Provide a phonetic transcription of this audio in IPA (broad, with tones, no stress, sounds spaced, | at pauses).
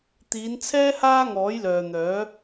t̪ iː˨˧ n t͡sʰ ɛː˥ h aː˥ ŋ ɔː˨˥ j l œː˨ n̪ œː˨˥